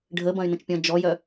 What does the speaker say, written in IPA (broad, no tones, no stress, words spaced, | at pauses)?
ɖʱəbɐ̃y̯nə̃t͡ʃpʲɔ̃ d͡ʒɔjœ